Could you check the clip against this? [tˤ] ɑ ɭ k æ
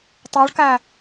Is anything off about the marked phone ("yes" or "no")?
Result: no